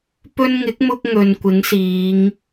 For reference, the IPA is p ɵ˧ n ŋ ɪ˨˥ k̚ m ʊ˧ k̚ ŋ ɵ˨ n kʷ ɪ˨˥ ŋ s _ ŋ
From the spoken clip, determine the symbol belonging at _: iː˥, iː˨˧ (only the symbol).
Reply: iː˨˧